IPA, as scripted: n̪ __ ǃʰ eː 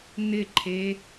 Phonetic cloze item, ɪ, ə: ɪ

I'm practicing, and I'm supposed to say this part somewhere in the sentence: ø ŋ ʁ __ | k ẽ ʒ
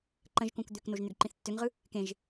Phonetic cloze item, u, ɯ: ɯ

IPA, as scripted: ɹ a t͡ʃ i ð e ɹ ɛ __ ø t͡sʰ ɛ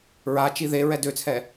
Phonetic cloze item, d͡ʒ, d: d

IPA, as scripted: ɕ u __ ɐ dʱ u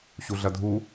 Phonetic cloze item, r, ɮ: ɮ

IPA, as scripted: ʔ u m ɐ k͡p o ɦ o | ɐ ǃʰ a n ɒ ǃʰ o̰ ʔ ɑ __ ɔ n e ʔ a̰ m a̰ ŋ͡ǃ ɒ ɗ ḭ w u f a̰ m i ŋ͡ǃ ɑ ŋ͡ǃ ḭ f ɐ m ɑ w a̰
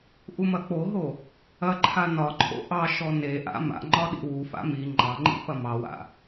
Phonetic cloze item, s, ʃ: ʃ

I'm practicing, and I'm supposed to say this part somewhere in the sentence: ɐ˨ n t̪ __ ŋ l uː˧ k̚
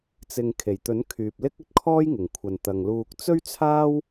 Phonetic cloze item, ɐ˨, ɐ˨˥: ɐ˨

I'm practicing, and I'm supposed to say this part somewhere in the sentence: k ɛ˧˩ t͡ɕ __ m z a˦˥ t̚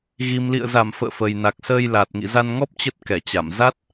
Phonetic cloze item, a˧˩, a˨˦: a˧˩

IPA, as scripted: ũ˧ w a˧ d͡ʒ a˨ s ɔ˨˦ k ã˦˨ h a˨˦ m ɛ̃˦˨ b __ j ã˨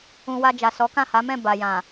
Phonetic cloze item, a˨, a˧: a˨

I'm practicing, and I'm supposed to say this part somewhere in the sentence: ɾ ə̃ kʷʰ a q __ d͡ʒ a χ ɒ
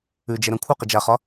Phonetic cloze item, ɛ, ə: ə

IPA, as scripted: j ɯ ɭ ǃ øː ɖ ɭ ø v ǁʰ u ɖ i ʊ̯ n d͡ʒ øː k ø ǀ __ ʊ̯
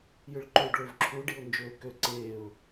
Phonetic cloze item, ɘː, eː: eː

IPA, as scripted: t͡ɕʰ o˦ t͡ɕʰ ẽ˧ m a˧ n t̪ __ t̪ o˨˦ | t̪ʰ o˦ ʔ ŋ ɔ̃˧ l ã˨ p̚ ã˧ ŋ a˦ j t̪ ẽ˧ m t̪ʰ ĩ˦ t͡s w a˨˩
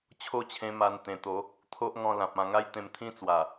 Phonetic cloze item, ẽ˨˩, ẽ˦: ẽ˨˩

